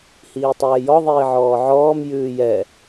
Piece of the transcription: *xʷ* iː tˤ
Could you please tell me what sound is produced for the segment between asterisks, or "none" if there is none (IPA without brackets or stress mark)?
h